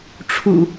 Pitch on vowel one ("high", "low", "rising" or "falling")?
low